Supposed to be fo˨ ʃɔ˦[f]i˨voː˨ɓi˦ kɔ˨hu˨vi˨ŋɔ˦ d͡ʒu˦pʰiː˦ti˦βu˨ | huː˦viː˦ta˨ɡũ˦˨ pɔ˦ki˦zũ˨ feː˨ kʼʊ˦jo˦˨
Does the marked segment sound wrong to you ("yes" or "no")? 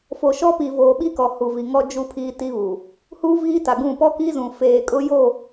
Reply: yes